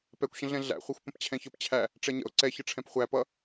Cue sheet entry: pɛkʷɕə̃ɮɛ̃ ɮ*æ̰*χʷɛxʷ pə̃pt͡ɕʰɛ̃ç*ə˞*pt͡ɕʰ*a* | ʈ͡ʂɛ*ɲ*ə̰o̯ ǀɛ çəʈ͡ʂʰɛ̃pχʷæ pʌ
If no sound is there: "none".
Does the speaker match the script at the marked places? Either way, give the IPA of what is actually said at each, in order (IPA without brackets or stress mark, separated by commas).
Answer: æ̰, ə˞, æ, ɲ